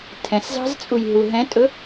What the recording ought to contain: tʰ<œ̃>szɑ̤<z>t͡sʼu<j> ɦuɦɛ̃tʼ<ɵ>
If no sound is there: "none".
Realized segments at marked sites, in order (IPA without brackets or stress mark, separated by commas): ɛ̃, z, j, ɵ